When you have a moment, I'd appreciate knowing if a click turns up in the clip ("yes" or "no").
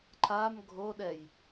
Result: yes